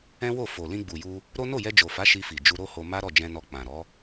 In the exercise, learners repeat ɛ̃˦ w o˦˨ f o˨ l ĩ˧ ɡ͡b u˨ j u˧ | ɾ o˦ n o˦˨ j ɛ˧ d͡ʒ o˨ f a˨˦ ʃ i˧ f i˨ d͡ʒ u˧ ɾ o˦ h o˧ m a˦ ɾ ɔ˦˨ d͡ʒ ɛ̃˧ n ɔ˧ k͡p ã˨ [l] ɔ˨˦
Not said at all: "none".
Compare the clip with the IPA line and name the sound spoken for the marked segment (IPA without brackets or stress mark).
ɾ